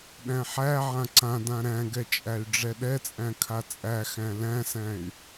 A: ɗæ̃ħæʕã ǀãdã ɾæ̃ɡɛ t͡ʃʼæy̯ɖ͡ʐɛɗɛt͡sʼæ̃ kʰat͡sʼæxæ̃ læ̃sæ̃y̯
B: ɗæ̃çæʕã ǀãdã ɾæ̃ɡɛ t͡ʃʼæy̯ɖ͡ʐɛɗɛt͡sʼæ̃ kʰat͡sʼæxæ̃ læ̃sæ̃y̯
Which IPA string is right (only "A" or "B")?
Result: A